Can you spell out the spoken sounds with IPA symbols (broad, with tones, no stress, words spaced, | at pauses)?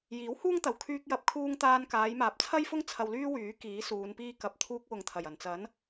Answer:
jiː˨˥whuː˥ŋt̪ɐ˨w kʰyː˧k̚jɐ˨˥p̚kʰuː˧ŋt̪aː˧n kaː˨˧jmaː˨p̚t͡sʰɐ˥jfʊ˥ŋ t͡sʰɐ˧wlyː˥wyː˨˥ kiː˨˥suː˨˧npiː˥ kɐ˧p̚ t̪ʰuː˧k̚wʊ˨ŋt̪ʰɐ˨˩j ɐ˨˩nt͡sɐ˨˥n